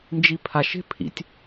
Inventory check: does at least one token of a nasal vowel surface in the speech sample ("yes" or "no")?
no